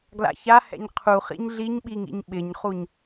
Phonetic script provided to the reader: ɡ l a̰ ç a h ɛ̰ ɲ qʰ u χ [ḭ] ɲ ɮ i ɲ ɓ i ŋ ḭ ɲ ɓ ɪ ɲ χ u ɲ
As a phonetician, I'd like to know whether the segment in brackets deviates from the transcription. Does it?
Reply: no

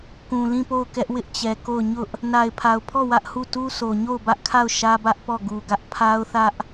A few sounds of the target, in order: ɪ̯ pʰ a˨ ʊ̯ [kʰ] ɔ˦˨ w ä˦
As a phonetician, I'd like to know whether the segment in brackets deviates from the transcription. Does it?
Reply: yes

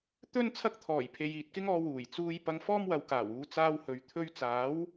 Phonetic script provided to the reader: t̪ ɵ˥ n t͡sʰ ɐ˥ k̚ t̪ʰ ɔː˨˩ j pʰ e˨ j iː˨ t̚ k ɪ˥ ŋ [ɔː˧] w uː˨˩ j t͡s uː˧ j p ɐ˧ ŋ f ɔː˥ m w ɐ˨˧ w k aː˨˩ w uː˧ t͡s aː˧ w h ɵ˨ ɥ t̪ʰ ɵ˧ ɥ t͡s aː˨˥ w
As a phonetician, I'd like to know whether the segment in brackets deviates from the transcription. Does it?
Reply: no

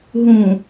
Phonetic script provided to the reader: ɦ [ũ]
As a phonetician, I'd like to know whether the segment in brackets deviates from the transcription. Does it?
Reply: no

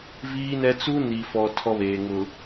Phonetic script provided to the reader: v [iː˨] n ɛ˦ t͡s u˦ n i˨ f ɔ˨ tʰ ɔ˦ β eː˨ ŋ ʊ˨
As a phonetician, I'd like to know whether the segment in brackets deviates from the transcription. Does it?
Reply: yes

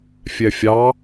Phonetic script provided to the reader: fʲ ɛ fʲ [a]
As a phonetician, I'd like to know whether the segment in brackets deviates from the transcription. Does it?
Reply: yes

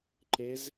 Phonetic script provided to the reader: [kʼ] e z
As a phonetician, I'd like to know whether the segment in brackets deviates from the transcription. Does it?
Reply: yes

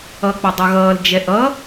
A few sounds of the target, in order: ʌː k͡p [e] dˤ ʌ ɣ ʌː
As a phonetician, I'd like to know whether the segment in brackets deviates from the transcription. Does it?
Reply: yes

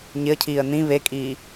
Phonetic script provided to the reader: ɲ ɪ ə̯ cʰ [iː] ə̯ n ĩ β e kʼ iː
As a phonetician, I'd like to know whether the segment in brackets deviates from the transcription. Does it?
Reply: no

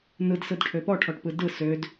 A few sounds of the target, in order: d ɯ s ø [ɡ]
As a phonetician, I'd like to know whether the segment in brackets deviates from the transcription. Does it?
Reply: yes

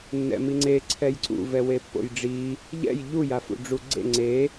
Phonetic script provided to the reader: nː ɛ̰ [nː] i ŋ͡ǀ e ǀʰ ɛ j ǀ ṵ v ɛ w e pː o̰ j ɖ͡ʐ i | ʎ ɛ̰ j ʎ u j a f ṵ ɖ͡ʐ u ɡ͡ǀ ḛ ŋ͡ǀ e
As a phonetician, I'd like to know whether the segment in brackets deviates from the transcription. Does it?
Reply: yes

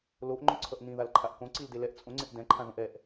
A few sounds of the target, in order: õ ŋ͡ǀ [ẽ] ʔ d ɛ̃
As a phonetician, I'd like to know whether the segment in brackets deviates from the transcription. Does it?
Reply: no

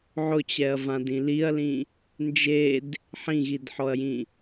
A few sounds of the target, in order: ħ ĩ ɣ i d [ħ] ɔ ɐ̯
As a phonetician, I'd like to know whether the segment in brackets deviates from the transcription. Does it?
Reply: no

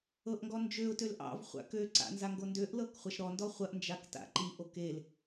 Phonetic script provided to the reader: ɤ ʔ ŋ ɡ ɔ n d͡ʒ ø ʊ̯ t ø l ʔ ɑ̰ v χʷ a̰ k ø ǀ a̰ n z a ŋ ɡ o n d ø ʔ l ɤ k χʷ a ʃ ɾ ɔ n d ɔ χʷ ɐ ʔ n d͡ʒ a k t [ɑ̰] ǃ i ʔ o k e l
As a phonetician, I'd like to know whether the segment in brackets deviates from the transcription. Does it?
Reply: yes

